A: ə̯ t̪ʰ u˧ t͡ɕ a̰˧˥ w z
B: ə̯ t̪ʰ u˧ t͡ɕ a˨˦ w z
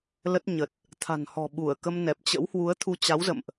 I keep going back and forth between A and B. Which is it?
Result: B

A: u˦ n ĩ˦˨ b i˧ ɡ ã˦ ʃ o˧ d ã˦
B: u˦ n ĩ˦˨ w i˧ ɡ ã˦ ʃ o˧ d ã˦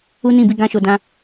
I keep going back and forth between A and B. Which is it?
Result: A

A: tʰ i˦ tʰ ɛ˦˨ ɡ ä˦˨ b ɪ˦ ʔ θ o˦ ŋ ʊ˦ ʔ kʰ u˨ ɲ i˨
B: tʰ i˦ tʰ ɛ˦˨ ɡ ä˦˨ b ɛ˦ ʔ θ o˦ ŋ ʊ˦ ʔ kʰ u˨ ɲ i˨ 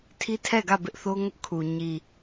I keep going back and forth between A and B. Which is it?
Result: A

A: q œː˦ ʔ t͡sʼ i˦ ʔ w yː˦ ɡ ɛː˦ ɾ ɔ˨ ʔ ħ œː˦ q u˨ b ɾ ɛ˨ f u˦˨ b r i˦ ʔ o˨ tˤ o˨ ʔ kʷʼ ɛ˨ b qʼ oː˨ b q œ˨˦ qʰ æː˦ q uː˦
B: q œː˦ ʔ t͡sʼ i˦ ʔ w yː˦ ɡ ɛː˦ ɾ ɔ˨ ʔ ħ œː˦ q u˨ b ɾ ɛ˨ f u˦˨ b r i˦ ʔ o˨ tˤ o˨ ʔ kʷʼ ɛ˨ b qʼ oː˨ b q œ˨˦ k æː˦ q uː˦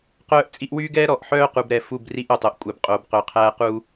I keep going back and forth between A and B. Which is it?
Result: A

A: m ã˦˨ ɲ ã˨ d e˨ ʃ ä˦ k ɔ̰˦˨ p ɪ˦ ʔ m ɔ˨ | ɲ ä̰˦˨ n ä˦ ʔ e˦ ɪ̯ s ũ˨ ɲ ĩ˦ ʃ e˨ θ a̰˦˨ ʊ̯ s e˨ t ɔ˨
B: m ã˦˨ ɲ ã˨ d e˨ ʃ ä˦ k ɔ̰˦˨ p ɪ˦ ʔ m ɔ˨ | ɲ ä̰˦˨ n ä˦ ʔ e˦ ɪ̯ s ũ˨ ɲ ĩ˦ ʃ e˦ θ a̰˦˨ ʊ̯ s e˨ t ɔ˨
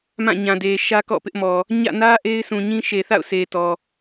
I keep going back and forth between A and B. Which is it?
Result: A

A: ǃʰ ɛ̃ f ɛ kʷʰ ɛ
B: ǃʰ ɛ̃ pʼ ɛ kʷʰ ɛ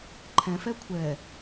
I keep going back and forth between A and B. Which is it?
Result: A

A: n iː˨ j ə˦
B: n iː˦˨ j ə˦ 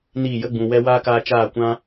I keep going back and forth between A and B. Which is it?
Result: B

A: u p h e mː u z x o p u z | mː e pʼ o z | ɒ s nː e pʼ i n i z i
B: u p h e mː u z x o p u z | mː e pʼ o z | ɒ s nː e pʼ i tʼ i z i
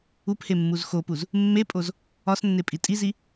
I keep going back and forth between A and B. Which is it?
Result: B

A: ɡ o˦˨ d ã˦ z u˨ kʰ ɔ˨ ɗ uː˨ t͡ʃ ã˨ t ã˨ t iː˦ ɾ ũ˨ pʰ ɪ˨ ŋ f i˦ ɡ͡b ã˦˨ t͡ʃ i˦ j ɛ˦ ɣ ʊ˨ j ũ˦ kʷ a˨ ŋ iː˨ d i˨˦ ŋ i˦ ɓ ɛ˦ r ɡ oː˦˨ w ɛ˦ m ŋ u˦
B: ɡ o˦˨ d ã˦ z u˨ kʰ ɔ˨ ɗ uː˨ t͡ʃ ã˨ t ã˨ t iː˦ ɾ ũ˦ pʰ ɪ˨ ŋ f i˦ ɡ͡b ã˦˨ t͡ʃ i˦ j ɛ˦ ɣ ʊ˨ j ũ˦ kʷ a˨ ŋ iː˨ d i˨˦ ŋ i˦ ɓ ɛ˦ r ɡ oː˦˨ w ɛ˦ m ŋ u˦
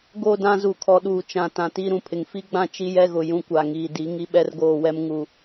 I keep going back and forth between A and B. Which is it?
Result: A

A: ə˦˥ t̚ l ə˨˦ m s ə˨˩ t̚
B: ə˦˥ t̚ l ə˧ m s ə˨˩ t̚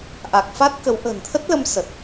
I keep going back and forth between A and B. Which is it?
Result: B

